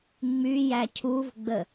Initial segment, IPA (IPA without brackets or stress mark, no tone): ŋ͡m